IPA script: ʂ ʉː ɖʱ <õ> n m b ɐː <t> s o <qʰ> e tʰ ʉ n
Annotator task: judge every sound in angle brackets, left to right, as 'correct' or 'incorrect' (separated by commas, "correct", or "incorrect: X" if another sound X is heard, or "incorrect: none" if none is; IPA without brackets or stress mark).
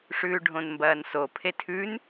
correct, incorrect: n, incorrect: pʰ